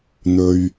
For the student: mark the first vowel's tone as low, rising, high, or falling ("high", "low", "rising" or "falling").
low